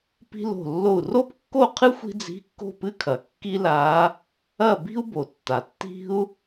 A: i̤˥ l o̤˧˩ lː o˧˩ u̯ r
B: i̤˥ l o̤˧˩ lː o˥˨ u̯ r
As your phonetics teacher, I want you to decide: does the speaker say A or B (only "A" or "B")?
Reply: A